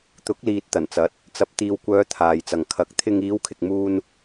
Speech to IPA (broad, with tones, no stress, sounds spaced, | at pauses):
t̪ ʊ˨˥ k̚ l iː˨ t̚ t̪ ɐ˨˩ n t͡s ɐ˨˥ t̚ | t͡s ɐ˧ p̚ t̪ iː˨ w kʷ œː˨˧ t̪ʰ aː˨ j t͡s ɐ˨ ŋ kʰ ɐ˨˥ k̚ t̪ʰ ɪ˨ ŋ iː˨˧ w kʰ ɪ˨ k̚ m uː˧ n